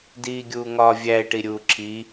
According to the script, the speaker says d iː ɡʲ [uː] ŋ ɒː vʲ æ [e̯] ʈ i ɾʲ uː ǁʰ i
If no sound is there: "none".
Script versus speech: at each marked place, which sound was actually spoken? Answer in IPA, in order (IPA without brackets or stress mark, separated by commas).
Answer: uː, e̯